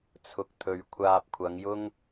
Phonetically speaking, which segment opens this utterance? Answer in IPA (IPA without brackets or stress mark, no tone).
t͡sʰ